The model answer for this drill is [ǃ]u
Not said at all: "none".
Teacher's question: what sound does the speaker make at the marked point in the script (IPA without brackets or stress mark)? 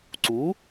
ǀ